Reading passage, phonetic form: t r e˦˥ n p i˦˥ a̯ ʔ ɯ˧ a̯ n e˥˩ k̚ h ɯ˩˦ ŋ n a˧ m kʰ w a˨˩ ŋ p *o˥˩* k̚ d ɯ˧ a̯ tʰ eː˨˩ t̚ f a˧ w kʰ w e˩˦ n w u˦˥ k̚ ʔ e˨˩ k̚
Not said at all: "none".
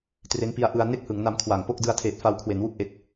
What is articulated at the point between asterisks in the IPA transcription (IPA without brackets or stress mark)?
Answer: o˥˩